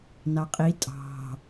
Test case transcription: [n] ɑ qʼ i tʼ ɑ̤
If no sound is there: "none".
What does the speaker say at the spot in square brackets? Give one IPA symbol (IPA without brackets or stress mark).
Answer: n